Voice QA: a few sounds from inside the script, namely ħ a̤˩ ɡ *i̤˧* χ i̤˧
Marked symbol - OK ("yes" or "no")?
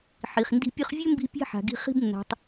yes